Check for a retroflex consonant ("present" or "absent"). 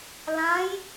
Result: absent